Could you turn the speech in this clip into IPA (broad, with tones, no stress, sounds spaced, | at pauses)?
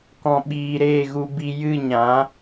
k ɔ̃˨ ɓ iː˨ ɾ eː˦˨ ɣ u˧ b i˧ j ɨ˦˨ ɲ ã˨˦